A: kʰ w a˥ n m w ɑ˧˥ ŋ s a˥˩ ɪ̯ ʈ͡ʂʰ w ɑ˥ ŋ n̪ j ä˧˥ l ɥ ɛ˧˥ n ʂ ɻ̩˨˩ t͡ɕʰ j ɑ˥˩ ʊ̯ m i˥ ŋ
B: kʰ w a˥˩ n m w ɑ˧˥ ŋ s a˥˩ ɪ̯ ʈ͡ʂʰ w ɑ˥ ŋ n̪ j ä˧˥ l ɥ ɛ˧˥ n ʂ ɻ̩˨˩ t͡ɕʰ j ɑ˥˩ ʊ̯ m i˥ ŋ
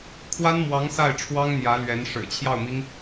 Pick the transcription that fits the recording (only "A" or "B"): A